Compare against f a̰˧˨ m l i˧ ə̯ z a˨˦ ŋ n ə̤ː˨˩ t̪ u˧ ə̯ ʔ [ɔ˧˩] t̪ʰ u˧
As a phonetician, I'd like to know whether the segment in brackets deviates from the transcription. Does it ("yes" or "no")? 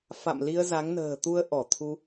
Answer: no